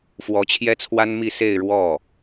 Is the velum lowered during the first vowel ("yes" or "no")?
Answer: no